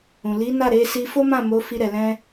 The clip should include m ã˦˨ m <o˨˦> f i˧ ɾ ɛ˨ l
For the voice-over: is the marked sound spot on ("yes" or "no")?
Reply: yes